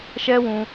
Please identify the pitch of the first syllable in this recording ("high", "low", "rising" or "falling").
high